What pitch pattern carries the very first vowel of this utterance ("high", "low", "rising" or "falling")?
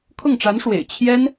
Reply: falling